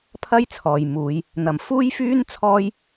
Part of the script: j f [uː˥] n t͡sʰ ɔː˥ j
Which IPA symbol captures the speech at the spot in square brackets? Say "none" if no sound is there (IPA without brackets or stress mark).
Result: yː˥